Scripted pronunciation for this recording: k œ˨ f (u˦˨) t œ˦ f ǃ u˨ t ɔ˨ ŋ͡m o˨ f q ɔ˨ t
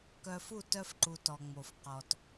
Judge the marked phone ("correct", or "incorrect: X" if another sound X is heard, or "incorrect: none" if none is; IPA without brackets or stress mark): correct